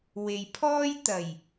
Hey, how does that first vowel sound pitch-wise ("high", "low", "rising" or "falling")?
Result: low